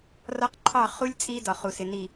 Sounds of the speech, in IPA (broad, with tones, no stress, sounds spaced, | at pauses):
r ɒ˦ q ǃʰ ɑ˦˨ χ u˦ lʲ t͡sʼ i˦ d ɒ˨ χ u˨ s ɪ˨ n i˨